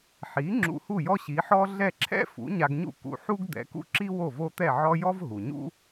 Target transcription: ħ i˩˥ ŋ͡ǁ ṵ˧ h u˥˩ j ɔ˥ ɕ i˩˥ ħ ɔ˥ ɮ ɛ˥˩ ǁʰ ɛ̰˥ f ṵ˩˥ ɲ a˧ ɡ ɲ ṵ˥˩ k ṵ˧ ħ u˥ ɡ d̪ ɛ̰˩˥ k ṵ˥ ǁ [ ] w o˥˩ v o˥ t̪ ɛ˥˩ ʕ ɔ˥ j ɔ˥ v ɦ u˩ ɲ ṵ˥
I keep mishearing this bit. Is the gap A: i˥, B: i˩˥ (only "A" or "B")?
A